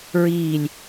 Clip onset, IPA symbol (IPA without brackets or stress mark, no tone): ɹ